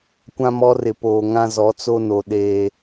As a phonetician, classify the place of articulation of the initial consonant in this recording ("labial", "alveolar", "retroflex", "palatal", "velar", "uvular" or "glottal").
velar